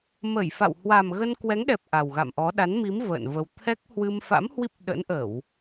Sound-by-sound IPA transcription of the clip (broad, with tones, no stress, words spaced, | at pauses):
mə˧˩jfa̰˧˨w hwa˨˩mɣə˧nkwɛ˨˦ŋɗɛ˨˩p̚ ʔa˨˩wɣa̰˧˨mʔɔ˨˦ ɗa˨˦nmi˨˦m və̰ː˧˨nvə˧w t̪ʰɛ˦˥k̚hwɨ˧m fa̰˧˥mhwi˦˥p̚ ɗə̰˧˥nʔə˧˩˨w